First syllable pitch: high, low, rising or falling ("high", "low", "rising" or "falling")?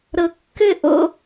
low